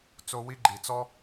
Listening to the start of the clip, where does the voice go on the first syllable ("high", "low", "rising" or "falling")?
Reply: high